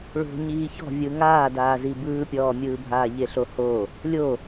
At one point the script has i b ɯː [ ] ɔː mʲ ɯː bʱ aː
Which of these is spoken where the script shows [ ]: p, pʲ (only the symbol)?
pʲ